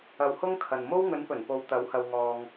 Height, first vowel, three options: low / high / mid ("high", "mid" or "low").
low